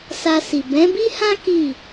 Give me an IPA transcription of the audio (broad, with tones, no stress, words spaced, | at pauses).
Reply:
sa˧si˨ bɛ̃˨˦bi˦hã˦ ki˦˨